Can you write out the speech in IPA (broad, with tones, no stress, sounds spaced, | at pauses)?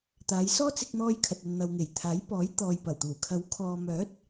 t̪ aː˨˧ j s ɔː˥ t͡s ɪ˧ k̚ n̪ ɔː˧ j kʰ ɐ˨ t̚ ɐ˨ n n̪ ɐ˨ w ŋ e˨˩ j t̪ʰ aː˨˥ j p ɔː˨˥ j t̪ ɔː˨ j p ɐ˨˩ w t̪ uː˨˩ kʰ ɐ˨˥ w kʰ ɔː˨ m œː˨˥ t̚